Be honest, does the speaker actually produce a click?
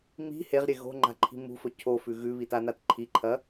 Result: yes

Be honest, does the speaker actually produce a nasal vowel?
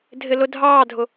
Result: no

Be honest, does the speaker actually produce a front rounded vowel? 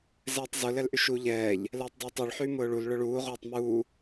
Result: yes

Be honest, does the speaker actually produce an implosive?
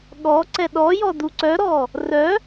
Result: yes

